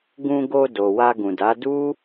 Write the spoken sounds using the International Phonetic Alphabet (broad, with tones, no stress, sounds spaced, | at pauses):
ɡ ũ˧ ɡ o˧ d o˨ w a˧ ɡ ũ˨ d a˨˦ d u˦